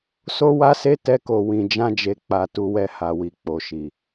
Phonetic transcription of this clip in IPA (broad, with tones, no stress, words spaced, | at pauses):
so˦wa˦se˦ tɛ˦ko˧ wĩ˧d͡ʒã˦d͡ʒe˧k͡pa˧ tu˧wɛ˧ha˨wi˨ k͡po˨ʃi˨